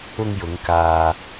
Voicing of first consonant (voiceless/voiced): voiced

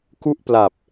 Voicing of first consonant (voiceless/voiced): voiceless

